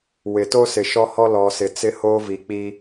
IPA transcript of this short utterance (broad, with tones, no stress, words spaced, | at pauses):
wɪ˨ to˦sɪ˨ʃɔ˦hɔ˦ lɔ˨sɪ˨t͡sɪ˦hoː˦ vi˨k͡pi˦